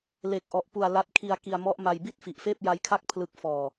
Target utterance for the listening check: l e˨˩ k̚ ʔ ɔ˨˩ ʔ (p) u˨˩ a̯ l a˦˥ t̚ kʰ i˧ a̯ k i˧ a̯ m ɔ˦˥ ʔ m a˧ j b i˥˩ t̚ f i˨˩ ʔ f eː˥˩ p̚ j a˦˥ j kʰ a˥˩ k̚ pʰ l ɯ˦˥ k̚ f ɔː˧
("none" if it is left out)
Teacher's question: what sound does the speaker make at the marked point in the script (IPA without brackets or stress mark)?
p